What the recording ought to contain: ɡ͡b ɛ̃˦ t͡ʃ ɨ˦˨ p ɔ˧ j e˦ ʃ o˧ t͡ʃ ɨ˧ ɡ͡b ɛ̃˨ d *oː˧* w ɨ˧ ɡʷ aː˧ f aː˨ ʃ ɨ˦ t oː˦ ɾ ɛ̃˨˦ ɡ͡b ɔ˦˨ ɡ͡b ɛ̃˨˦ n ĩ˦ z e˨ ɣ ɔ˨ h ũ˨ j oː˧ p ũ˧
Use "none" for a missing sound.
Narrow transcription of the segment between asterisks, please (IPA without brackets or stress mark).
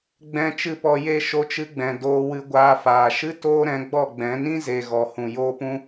oː˧